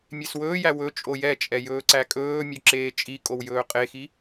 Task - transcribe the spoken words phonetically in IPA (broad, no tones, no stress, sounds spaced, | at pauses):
mʲ e s w ɵː j æ w ɵ t͡ʃʼ o j ɛ t͡ʃʼ ɛ j ɵː ǀ æ kʼ ɵː mʲ ø ǁ eː t͡ʃʼ i kʼ o w j ɵː qʼ e x i